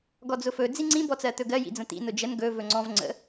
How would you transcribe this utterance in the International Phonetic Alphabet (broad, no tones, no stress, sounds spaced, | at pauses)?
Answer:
ɡ ɔ d͡z ʊ f ɵ d͡z i ŋ͡ǀ ĩ b ɔ t͡s ɜ t̪ ɵ ɡ ɜ j ḭ d͡z ə̃ t̪ ḭ n ʊ d͡ʒ ə n ɡ ɵ v ɵ ŋ͡ǀ ɔ̃ v ŋ͡ǀ ə̰